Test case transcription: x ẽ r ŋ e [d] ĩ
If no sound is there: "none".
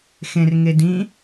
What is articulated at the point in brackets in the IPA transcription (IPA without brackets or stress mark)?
d